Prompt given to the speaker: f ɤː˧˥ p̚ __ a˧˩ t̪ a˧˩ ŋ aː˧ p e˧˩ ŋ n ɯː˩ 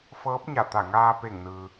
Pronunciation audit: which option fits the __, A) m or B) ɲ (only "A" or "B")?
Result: B